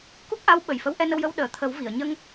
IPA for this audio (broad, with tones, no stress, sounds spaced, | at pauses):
k u˦˥ k̚ ʔ a˧˥ w ɓ ə˨˩ j f ə˧˥ w ʔ ɛ˧ n ə˧ w j ə˧ w ɗ əː˨˩˨ t̪ʰ ə˨˩˦ w v i˨˩˨ ə̯ ɲ ə˧ ŋ